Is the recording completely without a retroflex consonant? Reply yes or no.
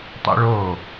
no